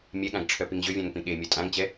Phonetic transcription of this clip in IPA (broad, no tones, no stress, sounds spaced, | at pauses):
mʲ ɛ ɠ ã ɡ ʈ͡ʂʰ œ p i ŋ ʑ ø vʲ ã ŋ p ĩ ɠ e mʲ œ tʼ ã ŋ t͡ɕ ɛ